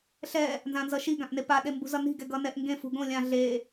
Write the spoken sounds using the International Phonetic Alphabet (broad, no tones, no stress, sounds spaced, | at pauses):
ɬ ɛ | n z ã n z ʌ ʃ i ɡ ã ʔ n e p a ɗ e m b ṳ z ʌ n i̤ ɡ ɛ ɡ ʌ n ɛ ʔ ŋ ɡ ẽ f ṳ ɡ õ lʲ ã ɮ e